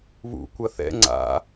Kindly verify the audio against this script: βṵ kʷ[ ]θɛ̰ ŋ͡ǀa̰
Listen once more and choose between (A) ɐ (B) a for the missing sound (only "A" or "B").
A